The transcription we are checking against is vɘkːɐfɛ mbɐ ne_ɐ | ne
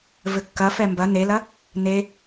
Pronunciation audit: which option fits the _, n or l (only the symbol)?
l